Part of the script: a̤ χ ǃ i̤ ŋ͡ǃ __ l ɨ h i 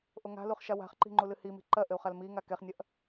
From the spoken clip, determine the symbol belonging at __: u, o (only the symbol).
u